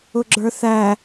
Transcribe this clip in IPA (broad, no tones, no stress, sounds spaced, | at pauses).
ʊ ɡ͡ǁ ə˞ θ æ